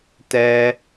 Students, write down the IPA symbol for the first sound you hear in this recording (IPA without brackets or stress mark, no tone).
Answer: t